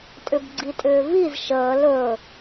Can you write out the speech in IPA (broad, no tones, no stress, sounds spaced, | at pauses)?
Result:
tʼ ʏ b ɡ͡ǀ i tʼ ʏː v i z ʃ əː l ɵ